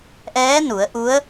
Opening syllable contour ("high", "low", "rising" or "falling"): rising